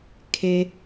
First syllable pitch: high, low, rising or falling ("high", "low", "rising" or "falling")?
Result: low